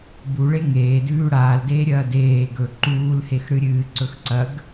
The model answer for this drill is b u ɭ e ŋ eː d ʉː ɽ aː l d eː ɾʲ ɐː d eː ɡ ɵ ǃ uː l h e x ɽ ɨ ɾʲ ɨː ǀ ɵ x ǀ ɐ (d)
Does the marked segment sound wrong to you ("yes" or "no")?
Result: yes